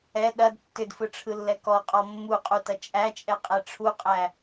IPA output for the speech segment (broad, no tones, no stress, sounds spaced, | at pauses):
ɛ ɗ ɐ d tː ʏ d f ɯ ʈ͡ʂʰ ɯ lː ɛ k ɔ qʼ ɔ mː u qʼ u t ɐ t͡ʃʼ æ t͡ʃʼ ɛ qʼ ɛ ʈ͡ʂʰ u qʼ æ